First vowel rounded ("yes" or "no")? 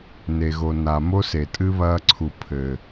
no